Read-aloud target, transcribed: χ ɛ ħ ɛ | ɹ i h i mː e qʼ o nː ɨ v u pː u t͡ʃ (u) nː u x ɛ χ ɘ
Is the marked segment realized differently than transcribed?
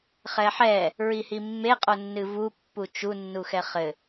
no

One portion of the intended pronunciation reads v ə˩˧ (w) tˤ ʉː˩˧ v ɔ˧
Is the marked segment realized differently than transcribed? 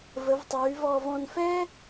yes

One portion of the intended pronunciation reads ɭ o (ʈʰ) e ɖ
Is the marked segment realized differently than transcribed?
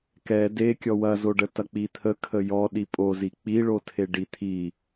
yes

